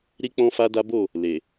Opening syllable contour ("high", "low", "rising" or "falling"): high